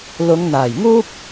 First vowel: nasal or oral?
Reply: oral